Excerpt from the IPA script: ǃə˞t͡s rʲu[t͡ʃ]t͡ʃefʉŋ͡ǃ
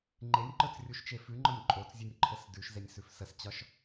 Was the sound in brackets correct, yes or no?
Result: no